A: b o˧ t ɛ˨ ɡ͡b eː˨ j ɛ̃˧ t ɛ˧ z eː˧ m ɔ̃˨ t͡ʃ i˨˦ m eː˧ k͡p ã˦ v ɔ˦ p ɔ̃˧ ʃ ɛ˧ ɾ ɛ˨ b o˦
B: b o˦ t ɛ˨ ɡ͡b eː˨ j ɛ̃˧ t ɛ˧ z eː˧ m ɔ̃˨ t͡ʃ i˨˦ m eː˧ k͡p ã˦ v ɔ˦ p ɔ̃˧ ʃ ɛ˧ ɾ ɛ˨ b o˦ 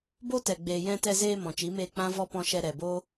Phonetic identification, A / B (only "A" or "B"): B